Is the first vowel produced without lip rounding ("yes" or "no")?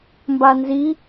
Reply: yes